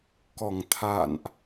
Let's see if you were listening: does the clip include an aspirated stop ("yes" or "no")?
yes